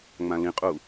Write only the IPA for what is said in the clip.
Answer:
ŋ͡mãlĩqʼu

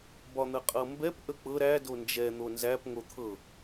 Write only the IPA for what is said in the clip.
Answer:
bɒn̪əqʼɤmbɛp ʔək͡pɤ ɾæ dond͡ʒɛ n̪onzæp ŋot̪ʰɤ

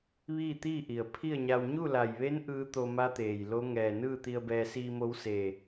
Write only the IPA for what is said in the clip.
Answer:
ʋiː˥˨t̪iː˥˨ʔi˩ə̯ pʰi˥˨ə̯ɲa˧w ɲu˥˨la˧˩jʋe˧˥n ʔɯː˧˥t̪o˧ma˧˥t̪eː˩j lo˧˥ŋɛː˧˩ nɯː˥˨t̪i˧ə̯bɛː˧ siː˧mo˧˥wseː˧˩

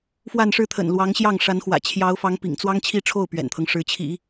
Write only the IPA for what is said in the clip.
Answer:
fwa˥˧nʂɻ̩˥˩t̪ʰə̰˨˩n lwɑ˧˥ŋɕjɑ˥˩ŋ ʂa˧˥nxwä̰˨˩ t͡ɕʰjɑ˧˥ʊ̯fɑ˧˥ŋ pḭ˨˩ŋ t͡swɑ˥ŋ t͡ɕʰi˥˧ʈ͡ʂʰo˥˩ʊ̯ pɥɛ̰˨˩nt̪ʰɤ˦ŋʂɻ̩˧˥ t͡ɕʰḭ˨˩˦

